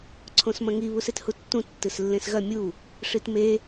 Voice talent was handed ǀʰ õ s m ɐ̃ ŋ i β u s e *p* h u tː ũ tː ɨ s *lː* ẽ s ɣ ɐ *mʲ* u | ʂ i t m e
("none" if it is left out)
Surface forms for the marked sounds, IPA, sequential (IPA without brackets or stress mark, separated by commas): t, lː, mʲ